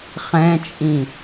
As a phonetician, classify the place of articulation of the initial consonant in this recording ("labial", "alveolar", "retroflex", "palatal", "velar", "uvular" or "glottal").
uvular